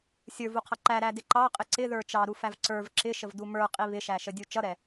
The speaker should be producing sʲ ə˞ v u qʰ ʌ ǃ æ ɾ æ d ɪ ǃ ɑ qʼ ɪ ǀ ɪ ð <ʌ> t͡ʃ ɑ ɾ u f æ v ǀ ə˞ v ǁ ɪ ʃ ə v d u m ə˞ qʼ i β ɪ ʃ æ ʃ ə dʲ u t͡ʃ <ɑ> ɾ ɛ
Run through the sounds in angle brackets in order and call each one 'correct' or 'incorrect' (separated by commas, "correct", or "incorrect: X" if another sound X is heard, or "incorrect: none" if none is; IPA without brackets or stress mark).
incorrect: ə˞, incorrect: ʌ